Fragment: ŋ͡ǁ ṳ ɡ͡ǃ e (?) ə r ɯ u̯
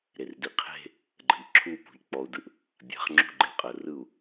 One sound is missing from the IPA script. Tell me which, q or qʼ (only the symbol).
qʼ